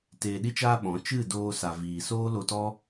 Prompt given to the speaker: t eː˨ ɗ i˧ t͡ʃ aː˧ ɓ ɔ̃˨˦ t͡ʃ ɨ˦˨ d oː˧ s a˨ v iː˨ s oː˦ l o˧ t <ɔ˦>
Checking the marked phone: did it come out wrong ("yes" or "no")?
no